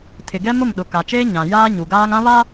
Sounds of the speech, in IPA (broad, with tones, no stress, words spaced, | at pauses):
tʰɪ˨ɡɛ˦ mʊ˦˨mɗʊ˨ka˨t͡ʃeː˦ ɲã˨ jaː˦ɲu˨ɡaː˦ŋ ã˦βa˦